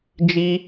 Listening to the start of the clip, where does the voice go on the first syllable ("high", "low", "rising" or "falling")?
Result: high